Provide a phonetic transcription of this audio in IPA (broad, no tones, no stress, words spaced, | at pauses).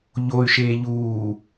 ʎoy̯ʃeː ʎuː